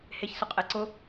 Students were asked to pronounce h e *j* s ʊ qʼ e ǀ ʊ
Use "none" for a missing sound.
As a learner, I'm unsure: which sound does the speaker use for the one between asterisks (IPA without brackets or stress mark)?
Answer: ç